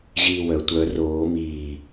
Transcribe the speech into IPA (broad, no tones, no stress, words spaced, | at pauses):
ʑiːwœ tʷœ roː miː